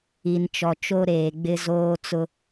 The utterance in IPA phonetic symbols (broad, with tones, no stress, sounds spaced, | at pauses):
i˨ n t͡ʃ ɔ˨ t͡ʃ o˦ ɾ eː˨ ɡ͡b ɪ˦ z oː˦ t͡s ʊ˦